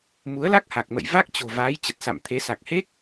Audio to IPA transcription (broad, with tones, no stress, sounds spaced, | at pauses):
m u˨˦ ə̯ l a˦˥ k̚ h a˨˩ k̚ m ə̰˧˨ j v a˦˥ k̚ t͡ɕ o̤˨˩ v aː˨˦ j t͡ɕ ə˨˩ t̚ s a̰˧˨ m t̪ʰ e˨˦ s a˨˩ k̚ h e˦˥ k̚